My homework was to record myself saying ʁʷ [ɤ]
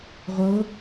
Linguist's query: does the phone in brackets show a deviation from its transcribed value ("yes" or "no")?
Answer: no